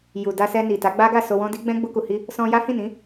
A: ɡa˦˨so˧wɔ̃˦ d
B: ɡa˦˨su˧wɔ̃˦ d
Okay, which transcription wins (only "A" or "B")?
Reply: A